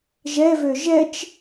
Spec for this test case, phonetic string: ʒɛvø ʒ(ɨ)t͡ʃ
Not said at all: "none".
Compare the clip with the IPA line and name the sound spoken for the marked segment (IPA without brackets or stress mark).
ɛ